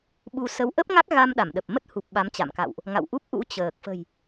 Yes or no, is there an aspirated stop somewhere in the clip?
no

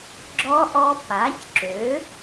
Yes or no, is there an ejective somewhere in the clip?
no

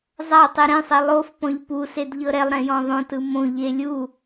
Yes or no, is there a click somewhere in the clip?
no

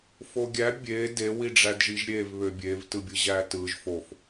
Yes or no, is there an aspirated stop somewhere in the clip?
no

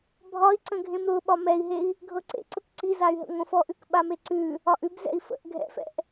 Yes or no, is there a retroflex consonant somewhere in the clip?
no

